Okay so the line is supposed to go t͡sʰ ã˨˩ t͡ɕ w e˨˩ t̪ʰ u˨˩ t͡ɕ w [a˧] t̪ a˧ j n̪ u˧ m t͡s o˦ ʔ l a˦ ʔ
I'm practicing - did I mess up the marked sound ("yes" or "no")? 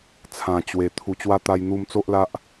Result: no